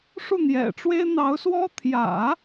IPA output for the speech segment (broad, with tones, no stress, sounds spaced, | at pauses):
ʂ u˥˩ n̪ j ɛ̰˨˩ ʈ͡ʂ w e˥ ɪ̯ n̪ ɑ˧˥ ʊ̯ s w ɔ˥ t̪ʰ j ä̰˨˩˦